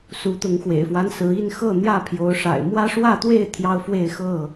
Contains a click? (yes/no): no